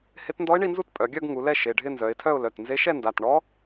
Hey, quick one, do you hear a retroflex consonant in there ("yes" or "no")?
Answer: yes